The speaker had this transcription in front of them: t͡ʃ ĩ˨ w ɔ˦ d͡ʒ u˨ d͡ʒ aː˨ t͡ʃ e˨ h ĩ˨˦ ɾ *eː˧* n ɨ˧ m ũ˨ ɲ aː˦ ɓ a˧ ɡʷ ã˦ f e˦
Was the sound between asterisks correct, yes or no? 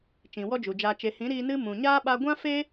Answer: no